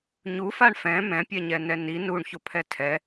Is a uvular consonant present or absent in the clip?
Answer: absent